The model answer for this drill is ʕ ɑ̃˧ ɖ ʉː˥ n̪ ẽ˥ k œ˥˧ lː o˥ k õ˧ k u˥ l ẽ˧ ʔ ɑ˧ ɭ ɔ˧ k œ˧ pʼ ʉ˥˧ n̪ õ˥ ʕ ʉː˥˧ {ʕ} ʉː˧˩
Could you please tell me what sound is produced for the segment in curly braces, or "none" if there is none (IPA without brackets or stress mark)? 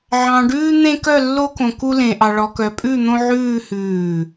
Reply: h